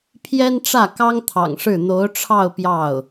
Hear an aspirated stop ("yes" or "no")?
yes